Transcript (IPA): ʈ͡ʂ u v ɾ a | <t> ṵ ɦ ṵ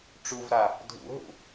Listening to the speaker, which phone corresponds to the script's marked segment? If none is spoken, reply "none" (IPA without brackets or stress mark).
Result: dʱ